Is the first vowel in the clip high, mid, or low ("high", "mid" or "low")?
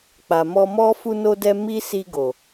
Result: low